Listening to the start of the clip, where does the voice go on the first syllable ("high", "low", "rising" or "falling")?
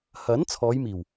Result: rising